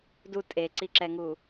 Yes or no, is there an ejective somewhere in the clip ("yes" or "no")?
yes